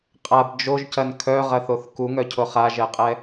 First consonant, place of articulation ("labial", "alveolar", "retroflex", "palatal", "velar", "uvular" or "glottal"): uvular